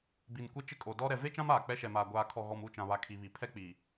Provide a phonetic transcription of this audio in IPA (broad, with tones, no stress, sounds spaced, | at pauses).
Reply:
b i˨ n kʷ e˦ t͡ʃ ɪ˦ kʼ o˨ d ɔ˦ ɾ ɛ˨ v e˦ t͡ʃ ã˦ m aː˨ k͡p ɛ˦ ʃ ɛ˨ m aː˨ ɡʷ aː˨ kʰ ɔ˨ ɣ ɔ˨ m u˦˨ t͡ʃ ã˨ β a˨ kʰ i˨ β i˨ pʰ ɛ˦ k͡p iː˨